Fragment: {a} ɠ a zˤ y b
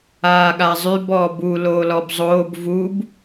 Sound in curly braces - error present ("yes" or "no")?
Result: yes